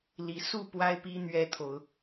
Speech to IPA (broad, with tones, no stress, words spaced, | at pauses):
li˨˦ su˥˨ pwa˦ɪ̯pi˦ n̪ɥɛ˦t̪ʰo˨˦ʊ̯